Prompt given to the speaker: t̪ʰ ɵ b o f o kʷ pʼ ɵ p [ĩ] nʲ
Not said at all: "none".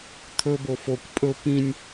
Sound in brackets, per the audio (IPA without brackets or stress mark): ĩ